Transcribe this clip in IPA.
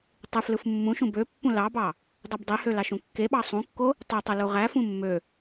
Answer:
tˤ ɯ f l ɯ f mː ũ ʃ ũ b ø pː ũ l ɑ b ɑ | dˤ u b dˤ e h ø l ɑ ʃ ũ kː e ɓ ɑ sˤ ũ kː o | tˤ y tˤ ɯ l u ʁ æ f ũ mː ø

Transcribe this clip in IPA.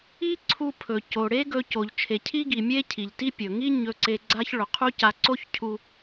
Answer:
i˥ ǀʰ u˧ pʰ ɵ˩ c o˩ ɽ e˥ ɡ ɵ˧ c o˩ ʎ t͡ʃʰ e˩ cʰ i˥ ɡ i˩ mʲ e˥ cʰ i˩ ʎ t i˥ pʲ ɵ˩ ŋ i˥ ɲ ɵ˧ ǀ e˧ ɡ͡ǀ a˥ ç ɭ ɵ˩ qʰ u˥ c a˧ ǀ o˥ ç cʰ u˧

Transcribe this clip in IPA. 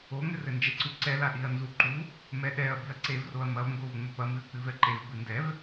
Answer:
o ŋ ɘ r ɘ n d͡ʒ ɛ ǀ u ǀ ɛ l a ɗ i ɐ̯ n z u ǃ u | m ɛ ɗ ɛ ɐ̯ b i ɐ̯ ǀ e v r o ɐ̯ m ɐ v ŋ ɡ o v ŋ͡m ɘ p ɐ m ɨ ɐ̯ k͡p ɨ v ɛ ǃ e v b ɨ n d ɛ v

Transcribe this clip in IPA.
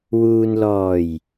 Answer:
w uː˨ n l ɔː˨˩ j

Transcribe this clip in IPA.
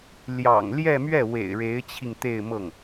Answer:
l j ɑ̰˨˩ ŋ l j ɛ˥˧ m ɥ ɛ˥˩ w ḛ˨˩ ɪ̯ ɻ e˧˥ ɪ̯ t͡ɕʰ i˧ ŋ t̪ e˥˧ ɪ̯ m ɤ˥˩ ŋ

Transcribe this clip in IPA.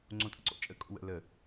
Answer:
ŋ͡ǀ õ tʼ ə̰ ǀ o̰ t͡ʃʼ ə kʼ o̰ w ə̰ l ə

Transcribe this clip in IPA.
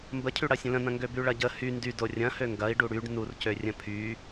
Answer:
m b ə cʰ y ɽ ɐ sʲ ə̃ l ə̃ n ɐ̃ ŋ ɡ ø b y ɭ ɐ ɟ ə h y n d y d o rʲ ɐ̃ h ø ŋ ɡ ɐ i̯ ɖ u ɽ y ɖ n u r c ø rʲ ə̃ pʰ y

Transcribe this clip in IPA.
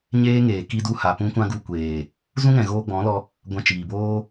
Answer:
ɲ eː˦ ŋ eː˨ k i˧ d u˧ h a˨ p ũ˧ kʷ ã˧ ɡ u˧ kʷ eː˨ | z ũ˦ ŋ ɛ̃˨ ɣ oː˧ ɡ͡b ɔ̃˨˦ l ɔ˧ | ɡʷ ã˧ t͡ʃ iː˨ b oː˦

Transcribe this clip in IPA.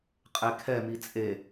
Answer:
qʼ e kʰ ɛ m i t͡sʼ e

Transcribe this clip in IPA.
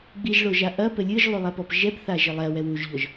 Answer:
ɡ͡b i ʒ ɭ o ʒ a ʔ ɐ p ɘ lʲ ɨ ʒ lˠ u lˠ a p ɔ p ʒ ɛ p θ a ʒ ɘ lˠ ɛ w ɛ w u ʒ ʎ ɔ ʒ

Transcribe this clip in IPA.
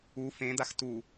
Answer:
u f ẽ d̪ a x t u

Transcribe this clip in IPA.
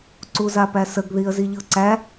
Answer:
ǀ u z a p æ s ə ɡ ð i ə̯ z i ʎ ɤ ǀ æ

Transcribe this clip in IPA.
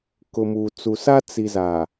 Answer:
k ʊ˨ m u˨ t͡s u˨ s a˦ t͡s i˨ z a˨

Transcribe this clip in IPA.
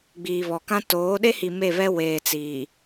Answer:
ɡ͡b iː˨ β ɔ˨ k ã˦ t oː˨˦ ɗ e˦ h i˨ m e˦˨ β ɛ˦ w eː˨ t͡s iː˨

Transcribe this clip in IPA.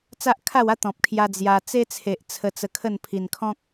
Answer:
t͡s a˦ ʔ kʰ a˥˧ w a˦ t̪ ɔ̃˨ p̚ kʰ j a˧ d͡z j a˧ t͡s e˦ t͡sʰ e˨ ʔ t͡sʰ ə˧ t͡s ə˧ kʰ ə˥˧ n pʰ i˨˩ n kʰ ɔ̃˦ k̚

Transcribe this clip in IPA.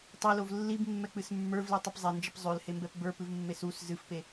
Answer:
tˤ e l o v lː i b mː ɛ k͡p ɨ s mː ə˞ v l i tˤ ɨ p zˤ e n d͡ʒ ə p zˤ ø l h e m b ɛ p b ə˞ p ɨ v mː e s u s z ɨ f p e

